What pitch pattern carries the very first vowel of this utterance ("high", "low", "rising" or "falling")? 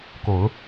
low